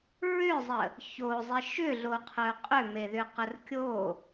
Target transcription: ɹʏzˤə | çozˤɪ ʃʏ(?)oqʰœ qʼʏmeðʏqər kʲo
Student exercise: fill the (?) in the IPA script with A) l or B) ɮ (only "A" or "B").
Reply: B